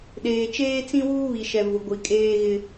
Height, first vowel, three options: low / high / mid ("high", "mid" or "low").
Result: mid